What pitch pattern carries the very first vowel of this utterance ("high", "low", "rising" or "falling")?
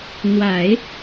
low